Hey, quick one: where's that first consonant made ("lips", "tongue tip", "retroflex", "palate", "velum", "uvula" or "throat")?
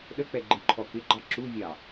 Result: tongue tip